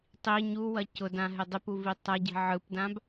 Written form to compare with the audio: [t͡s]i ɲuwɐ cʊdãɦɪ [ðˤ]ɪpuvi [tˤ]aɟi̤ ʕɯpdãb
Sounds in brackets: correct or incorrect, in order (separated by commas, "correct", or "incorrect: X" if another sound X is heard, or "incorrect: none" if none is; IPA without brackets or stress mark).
incorrect: tˤ, incorrect: dˤ, correct